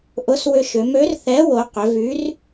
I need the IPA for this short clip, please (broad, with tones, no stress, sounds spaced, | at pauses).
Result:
ʔ ʊ˨˥ s w ʏ˧ ʃ ʏ˩˧ m ø˨˥ r θ ɛ˨˥ w o˩˧ q ʏ˩˧ v y˨˥ r